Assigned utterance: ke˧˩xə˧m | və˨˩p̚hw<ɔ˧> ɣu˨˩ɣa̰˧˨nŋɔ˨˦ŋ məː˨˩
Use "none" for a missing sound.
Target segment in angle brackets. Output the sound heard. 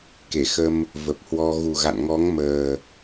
ɔ˧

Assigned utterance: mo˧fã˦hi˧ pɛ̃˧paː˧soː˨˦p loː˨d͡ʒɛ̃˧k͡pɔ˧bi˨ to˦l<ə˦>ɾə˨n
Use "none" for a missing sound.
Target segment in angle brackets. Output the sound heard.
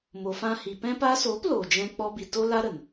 a˦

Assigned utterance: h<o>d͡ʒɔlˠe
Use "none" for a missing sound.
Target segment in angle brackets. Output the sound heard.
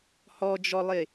ɔ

